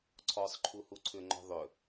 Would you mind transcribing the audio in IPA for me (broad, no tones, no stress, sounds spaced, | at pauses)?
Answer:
ǀʰ ɔ sˤ ǃʰ u h u ǀʰ ʏ ŋ͡ǃ ɔ̤ ðˤ ʏ